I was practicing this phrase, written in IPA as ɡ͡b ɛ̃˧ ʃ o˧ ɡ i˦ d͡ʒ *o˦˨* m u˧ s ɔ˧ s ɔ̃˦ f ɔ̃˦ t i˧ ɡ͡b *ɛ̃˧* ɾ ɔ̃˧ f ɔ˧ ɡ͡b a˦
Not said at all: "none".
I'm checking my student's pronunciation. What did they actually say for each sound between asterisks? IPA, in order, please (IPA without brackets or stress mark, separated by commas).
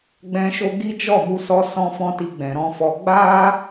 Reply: ɔ˦˨, ɛ̃˨